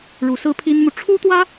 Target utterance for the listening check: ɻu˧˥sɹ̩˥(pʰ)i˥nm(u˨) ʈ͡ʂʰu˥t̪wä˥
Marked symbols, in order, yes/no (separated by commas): yes, yes